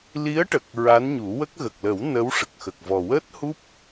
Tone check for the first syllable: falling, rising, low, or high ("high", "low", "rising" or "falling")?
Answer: rising